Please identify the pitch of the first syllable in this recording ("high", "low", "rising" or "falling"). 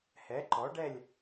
rising